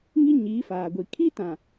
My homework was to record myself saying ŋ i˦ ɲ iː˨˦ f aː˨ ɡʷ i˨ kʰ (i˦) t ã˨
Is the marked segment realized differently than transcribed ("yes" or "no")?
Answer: no